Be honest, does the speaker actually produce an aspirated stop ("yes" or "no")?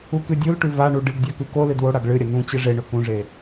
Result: no